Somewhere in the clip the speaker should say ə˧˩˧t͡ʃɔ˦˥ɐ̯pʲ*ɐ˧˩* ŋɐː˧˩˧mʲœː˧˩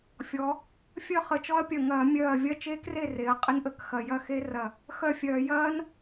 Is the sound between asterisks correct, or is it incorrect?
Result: correct